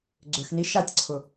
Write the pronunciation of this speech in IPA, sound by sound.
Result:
ɡ͡ǀ ʏ x n i ʃ a tʲ ǀʰ ʊ

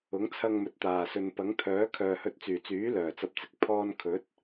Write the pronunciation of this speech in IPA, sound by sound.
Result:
ʊ˨˥ ŋ t͡sʰ ɐ˧ ŋ m ɵ˨ t̚ t̪ aː˨˩ s ɵ˨ n p ɐ˨˥ ŋ t̪ʰ œː˨˥ kʰ œː˨ h ɵ˧ t̚ t͡s yː˨˩ t͡s yː˨˥ l œː˨˩ t͡s ɐ˧ p̚ t͡s ɪ˨ k̚ pʰ ɔː˥ n kʰ ɵ˨˥ t̚

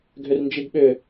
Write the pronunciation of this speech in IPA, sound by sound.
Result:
ɡʱ ʏ r n d͡ʒ i ɡ ɓ ʏ

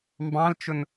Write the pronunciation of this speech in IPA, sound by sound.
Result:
m b ɑ̃ l t͡ʃ ʊ n

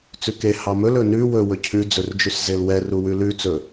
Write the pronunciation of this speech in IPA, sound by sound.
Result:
t͡s ʉ k e h ɑ m ɵ l ɵ n ʉ w ɵ w ɵ cʰ ʉ d͡z ɵ r d͡ʒ ʉ s z e l w ɛ r u w ʉ l ʉ t͡s ɵ

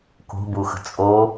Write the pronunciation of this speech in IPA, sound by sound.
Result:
k o̤ b u x ə̤ t͡sʼ o

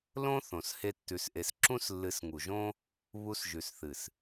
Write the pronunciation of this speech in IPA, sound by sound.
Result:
l õ˦ θ õ˨ s h e˦ tː ʉ˧ s ʔ e˧ s ǁ ũ˦ s lː ɨ˨˦ s ŋ u˨ ʒ õ˦ | β u˧ s ʒ ʉ˨ s θ ɨ˨ s

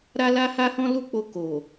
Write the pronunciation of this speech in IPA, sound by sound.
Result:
ɾ a˦ l a˦ h a˦ h ɔ̃˦ l u˦˨ k͡p o˧ k o˨

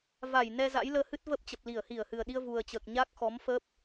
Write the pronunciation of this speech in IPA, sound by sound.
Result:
v a˧˩ j n ɛ˧ z a̰˧˥ j l əː˧ h ɨ˦˥ t̚ v ə˦˥ p̚ t͡ɕ ə˨˩ p̚ l i˧˩ ə̯ h i˧˩ ə̯ h ɨ˨˩ ə̯ ɗ i˧ ə̯ v u˨˩ ə̯ t͡ɕ əː˨˩ k̚ ɲ aː˦˥ k̚ x ɔ˨˦ m f ə˦˥ p̚

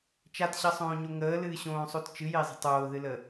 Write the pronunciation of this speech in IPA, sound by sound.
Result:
t͡ʃ a t ɕ ʌ sˤ õː ɲ o ŋ əː l ɨː ɕ õː sˤ o t t͡ʃ ɨ j ɪː zˤ ə̤ tˤ oː ð ɨ l ə

